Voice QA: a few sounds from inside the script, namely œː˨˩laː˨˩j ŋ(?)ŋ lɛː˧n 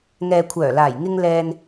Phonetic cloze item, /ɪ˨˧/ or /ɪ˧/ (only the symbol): ɪ˧